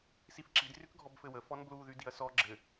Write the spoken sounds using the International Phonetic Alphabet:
s i f ǁ i d r y k ɡʱ ɔ b f ɘ w ə f ɔ n b l u ð y d i ɐ̯ s ɔ ɡ͡ǁ ɘ

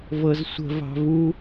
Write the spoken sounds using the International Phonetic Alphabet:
v ɤ z sʷ ə̤ v ɑ̤ v u

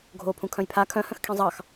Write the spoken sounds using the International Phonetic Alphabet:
ɡʱ oː pʰ ũ kʰ œ̃ j pʰ a kʰ œ̃ h œ̃ x kʰ ẽ zˤ ɑ x

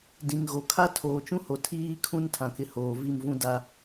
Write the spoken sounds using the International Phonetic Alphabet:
d ĩ˨ ŋ ɣ o˨ kʰ a˦ tʰ oː˨ t͡ʃ ũ˦ h o˨ tʰ iː˦ kʰ ũ˦ n tʰ ã˨ k ɪ˨ h oː˨ v i˦˨ m v ũ˦ d a˦

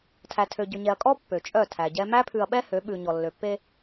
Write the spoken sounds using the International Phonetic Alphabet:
tʰ æ˨ tʰ ø˨ ɟ ɵ˨ ɲ ɛ˨ ɐ̯ kʼ ɔ˦ pː ø˨ t͡ʃʼ œ˦˨ tʰ æ˨ ɟ ɛ˦ m æ˦ pʰ ʉ˨ ɐ̯ ɓ ɛ˦ h ø˨˦ ɓ ʉ˨ ɲ ɔ˨ lː ø˨ pː e˦

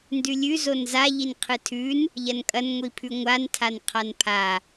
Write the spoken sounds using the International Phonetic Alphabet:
n d ʉ lʲ ʉ z o n z a ʎ i n qʰ ɨ tʰ ʉ n | ʎ ɐ n kʼ ɐ n ŋʷ i pʰ ʉ ŋʷ a n tʰ a n qʰ a n pʰ a

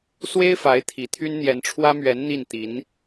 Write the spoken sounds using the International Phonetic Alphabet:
s w e˥ ɪ̯ f a˧˥ ɪ̯ t̪ʰ i˨˩ t̪ʰ y˥ n n̪ j ɛ˧˥ n ʈ͡ʂʰ w ä˥ m ɥ ɛ˧˥ n n̪ i˥˩ n t̪ i˧˥ n

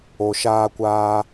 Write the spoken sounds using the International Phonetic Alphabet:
o˨ ʃ aː˧ kʷ aː˧

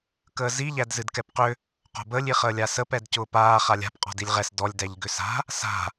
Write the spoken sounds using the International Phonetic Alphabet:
k əː z i ʎ æ d z ɨ d k ɛ p q ʏ | q o̤ b əː lʲ i χ əː lʲ a s ə p ɛ d c ʊː p aː χ a lʲ a̤ p qʼ ɔ̤ d i lʲ ʁ ɛ s d ɔ lʲ d æ ʎ ɡ ʏ s a̤ | s a̤

